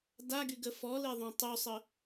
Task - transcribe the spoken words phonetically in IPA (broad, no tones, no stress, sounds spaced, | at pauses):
d a ɡ y ɡ ə f ɔ l e ðˤ õ tˤ y sˤ ə